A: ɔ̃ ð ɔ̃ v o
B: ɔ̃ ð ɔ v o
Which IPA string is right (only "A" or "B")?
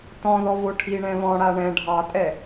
B